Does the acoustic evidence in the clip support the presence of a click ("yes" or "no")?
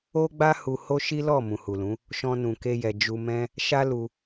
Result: no